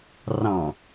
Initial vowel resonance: nasal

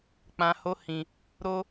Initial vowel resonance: nasal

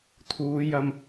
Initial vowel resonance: oral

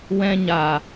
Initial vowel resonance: nasal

